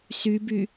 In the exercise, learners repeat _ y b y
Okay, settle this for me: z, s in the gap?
s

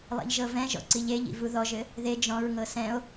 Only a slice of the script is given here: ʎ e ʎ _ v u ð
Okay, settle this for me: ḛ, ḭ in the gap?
ḭ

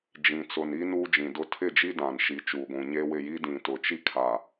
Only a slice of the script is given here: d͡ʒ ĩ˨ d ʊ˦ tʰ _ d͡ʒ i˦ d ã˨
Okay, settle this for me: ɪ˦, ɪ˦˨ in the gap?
ɪ˦˨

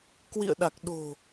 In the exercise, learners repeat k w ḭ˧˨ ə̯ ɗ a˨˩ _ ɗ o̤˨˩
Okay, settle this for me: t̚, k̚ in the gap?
k̚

